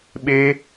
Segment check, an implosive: present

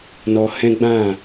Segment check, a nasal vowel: present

